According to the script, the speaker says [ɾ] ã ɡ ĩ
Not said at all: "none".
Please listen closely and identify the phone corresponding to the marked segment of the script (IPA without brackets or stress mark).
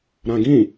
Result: ɾ